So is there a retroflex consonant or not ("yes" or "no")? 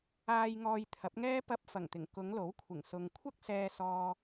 no